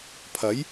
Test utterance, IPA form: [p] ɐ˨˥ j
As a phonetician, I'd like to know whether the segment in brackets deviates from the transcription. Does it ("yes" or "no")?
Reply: yes